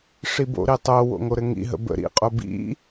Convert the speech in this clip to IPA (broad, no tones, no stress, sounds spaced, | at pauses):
ʂ i b o̰ ɾ i tˤ o w o̰ ŋ o ɾ ɘ ŋ ḭ ɦ ə̰ b ə̰ ɾ ḭ qʼ o b ḭ